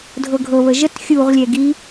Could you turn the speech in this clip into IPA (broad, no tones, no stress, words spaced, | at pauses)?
dʱɤɡʱɤβə ʒət xʲuʁlʲɛ ɡi